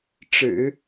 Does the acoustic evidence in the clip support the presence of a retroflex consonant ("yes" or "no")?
yes